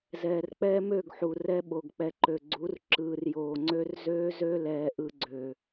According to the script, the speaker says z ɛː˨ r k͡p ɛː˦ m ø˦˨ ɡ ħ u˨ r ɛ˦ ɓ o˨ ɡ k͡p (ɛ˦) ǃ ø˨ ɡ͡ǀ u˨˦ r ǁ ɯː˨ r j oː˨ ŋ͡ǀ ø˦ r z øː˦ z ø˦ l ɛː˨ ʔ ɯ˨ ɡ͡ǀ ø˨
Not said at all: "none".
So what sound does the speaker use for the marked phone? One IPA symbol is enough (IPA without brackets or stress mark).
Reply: ɛ˨